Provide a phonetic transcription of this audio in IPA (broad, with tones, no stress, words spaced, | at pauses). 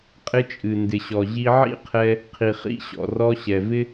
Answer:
qʼɪ˧t͡ʃʼɨ˨ndɪ˨ɕɔ˨ ʑi˧ʕḭ˦qʰɛ˧ | qʰi˨χḭ˧ɕɔ̰˨ rɔ˧ɕɛ˨vɪ˦